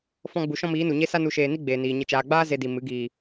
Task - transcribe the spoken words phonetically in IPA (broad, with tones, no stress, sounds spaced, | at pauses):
f ɔ̃˧ ɡ͡b u˨ ʃ ɔ̃˦ m iː˨˦ n u˨ ɲ e˦ s a˧ n u˨ ʃ eː˨ n i˦ ɡ͡b eː˨ n iː˨ ɲ ə˨ t͡ʃ aː˨ ɡ͡b aː˦ z e˧ d i˨ m ɨ˨˦ ɡ iː˨